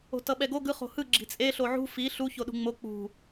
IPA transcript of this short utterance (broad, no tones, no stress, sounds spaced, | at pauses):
o̤ t ʌ ɓ ɛ ɡ o ɡ ɯ χ o̤ h ɯ ɡ͡ǁ i̤ t͡sʼ e ɬ o ʕ ṳ f i ɬ u ç o ɗ ṳ ŋ͡m o k͡p ṳ